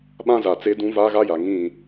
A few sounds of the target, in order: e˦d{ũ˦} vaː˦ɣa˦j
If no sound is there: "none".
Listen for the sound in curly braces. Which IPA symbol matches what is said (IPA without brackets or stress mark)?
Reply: ũ˦